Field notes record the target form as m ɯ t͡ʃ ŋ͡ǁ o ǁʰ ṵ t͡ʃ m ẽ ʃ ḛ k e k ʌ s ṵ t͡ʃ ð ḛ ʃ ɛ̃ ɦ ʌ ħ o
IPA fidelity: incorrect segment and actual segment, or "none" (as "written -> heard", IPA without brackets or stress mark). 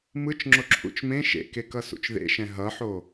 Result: none